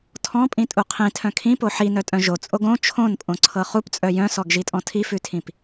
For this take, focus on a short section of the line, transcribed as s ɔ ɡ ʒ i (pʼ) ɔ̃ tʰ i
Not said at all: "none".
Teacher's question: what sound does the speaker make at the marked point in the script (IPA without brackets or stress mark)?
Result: tʼ